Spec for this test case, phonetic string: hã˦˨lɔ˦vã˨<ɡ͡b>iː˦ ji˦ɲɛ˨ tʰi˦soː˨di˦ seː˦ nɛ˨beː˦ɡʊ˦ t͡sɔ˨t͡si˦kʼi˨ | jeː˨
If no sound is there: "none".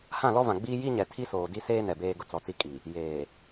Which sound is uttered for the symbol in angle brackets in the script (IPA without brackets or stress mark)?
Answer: ɡ͡b